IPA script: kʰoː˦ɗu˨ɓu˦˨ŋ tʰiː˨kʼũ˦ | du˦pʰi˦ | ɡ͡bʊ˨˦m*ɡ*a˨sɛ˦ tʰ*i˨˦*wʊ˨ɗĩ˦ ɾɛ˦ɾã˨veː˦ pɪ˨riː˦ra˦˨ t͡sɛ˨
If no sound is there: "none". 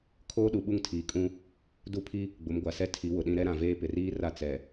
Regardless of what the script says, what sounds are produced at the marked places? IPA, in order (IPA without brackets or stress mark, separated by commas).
ɡʷ, i˨˦